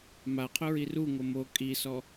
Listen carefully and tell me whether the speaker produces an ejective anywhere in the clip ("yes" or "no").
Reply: yes